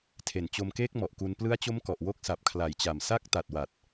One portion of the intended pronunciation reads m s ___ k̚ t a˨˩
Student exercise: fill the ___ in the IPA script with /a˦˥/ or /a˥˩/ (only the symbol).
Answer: a˦˥